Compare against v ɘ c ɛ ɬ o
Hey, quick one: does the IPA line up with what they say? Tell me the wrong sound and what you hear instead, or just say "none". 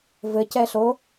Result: none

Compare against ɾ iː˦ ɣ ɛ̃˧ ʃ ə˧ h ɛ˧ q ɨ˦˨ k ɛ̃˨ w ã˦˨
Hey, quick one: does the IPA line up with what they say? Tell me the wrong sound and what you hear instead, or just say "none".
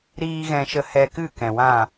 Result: q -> k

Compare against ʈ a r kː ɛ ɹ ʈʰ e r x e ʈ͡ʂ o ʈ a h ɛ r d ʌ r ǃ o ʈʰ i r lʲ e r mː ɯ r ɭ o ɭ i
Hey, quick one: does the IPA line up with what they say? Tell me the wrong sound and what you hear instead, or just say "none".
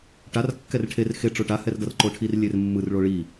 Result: ɹ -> r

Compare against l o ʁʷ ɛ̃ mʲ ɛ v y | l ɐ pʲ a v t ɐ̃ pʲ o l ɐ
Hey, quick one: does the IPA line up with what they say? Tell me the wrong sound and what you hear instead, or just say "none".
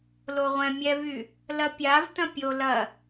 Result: none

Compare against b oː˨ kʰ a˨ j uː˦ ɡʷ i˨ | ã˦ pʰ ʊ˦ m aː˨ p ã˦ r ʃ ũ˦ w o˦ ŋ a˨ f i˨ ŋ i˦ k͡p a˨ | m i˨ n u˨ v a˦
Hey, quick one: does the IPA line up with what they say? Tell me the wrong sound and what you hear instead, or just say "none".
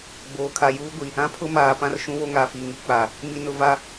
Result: u˨ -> ʊ˨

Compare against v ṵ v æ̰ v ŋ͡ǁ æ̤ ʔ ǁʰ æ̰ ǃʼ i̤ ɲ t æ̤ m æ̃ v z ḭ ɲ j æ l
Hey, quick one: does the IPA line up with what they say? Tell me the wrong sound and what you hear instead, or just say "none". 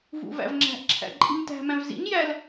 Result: none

